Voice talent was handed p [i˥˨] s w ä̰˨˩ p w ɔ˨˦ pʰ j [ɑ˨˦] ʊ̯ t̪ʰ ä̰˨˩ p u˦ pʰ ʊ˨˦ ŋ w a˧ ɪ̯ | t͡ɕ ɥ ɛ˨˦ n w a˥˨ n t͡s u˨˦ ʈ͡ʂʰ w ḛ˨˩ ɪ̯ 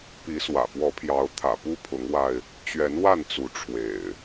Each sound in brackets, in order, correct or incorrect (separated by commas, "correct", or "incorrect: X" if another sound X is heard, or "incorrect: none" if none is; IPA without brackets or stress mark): incorrect: i˨˦, correct